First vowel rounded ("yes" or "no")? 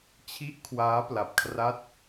no